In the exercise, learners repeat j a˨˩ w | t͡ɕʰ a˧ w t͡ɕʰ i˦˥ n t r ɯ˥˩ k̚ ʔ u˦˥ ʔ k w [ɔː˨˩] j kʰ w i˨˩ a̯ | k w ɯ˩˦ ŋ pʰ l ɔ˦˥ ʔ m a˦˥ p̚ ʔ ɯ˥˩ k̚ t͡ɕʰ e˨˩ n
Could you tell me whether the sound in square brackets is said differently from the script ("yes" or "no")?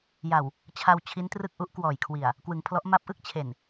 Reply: no